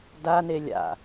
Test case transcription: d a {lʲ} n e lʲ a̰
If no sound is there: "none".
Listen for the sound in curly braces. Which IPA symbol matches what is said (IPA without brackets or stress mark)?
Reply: none